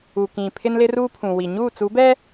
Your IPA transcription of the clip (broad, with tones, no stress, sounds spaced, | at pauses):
u˨ k ĩ˨ pʰ ɪ˦ n l ɪ˦ r uː˦ pʰ ũ˨ w i˨ ɲ uː˦˨ t͡s u˨˦ b ɛ˦